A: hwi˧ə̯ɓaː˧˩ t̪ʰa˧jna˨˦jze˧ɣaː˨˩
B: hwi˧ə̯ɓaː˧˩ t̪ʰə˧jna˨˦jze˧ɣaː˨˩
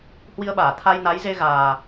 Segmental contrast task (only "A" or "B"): A